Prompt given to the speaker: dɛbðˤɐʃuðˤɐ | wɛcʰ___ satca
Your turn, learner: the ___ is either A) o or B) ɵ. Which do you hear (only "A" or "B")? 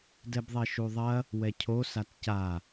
A